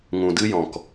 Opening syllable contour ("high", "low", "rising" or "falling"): low